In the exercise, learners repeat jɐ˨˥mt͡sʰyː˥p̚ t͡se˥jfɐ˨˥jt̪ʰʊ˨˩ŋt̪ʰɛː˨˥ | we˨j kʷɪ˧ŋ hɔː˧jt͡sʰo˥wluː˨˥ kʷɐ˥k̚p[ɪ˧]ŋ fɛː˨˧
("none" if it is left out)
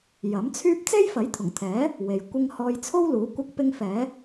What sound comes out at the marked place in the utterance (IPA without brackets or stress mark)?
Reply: ɪ˥